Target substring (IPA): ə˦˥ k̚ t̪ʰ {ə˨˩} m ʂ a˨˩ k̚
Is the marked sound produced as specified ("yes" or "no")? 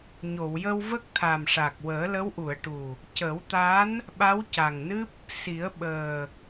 no